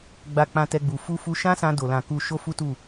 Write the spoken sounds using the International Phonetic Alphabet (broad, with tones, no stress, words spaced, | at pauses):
ɡ͡ba˨k͡pã˨ tɛ˧ɡ͡bu˨ fu˧fu˧ ʃã˦sã˧do˨lã˨ ku˧ʃo˦ fu˦tu˦˨